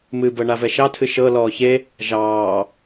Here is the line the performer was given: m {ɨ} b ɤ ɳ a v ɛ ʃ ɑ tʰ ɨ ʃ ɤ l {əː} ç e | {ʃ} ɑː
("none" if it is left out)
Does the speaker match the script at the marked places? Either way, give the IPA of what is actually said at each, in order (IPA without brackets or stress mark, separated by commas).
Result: ɨ, ɔː, ʒ